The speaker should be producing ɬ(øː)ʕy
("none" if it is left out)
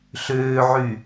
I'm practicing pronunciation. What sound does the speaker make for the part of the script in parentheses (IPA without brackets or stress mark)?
øː